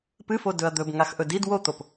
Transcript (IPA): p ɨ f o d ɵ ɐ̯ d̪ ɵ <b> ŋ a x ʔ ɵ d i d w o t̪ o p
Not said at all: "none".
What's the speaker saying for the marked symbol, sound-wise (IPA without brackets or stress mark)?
b